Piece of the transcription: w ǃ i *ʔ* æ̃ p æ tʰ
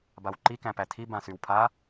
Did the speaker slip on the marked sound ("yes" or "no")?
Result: yes